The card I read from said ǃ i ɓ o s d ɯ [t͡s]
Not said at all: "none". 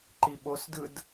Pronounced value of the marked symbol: d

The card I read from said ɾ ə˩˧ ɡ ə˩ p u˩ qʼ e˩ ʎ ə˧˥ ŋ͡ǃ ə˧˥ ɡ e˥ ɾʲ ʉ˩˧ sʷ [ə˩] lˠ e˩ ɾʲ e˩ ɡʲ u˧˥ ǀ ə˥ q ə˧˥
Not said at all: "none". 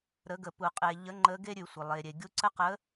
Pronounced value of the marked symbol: ə˩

